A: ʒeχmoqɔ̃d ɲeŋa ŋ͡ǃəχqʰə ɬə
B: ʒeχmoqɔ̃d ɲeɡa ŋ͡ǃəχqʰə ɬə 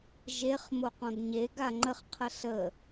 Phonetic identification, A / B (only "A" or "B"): B